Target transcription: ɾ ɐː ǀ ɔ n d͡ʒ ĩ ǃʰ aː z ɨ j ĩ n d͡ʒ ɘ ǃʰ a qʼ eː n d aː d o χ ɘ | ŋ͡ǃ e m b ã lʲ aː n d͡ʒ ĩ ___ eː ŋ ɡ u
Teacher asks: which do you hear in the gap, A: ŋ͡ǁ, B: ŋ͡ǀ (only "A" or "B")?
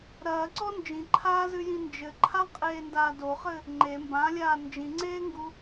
B